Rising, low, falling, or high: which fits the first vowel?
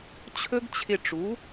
high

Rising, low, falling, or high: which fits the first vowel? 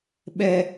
high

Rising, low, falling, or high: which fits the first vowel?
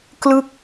falling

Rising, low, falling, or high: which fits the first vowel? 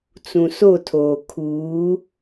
low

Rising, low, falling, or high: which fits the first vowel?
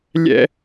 high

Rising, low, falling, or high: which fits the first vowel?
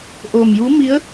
low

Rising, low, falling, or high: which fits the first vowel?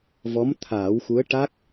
rising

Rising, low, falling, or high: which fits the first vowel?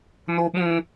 high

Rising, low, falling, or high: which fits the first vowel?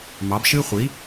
rising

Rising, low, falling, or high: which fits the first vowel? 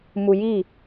low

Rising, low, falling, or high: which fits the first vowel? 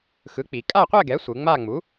rising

